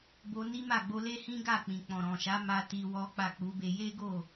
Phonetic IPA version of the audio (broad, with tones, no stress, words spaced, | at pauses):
bo˧ni˦ma˦˨ɡ͡bo˧ le˦hĩ˦ɡa˦˨k͡pĩ˨ k͡pɔ̃˨ɾɔ̃˨ʃa˨˦ ma˦ti˧wɔ˦k͡pa˦˨ k͡pu˨˦be˧ je˦ ɡo˦˨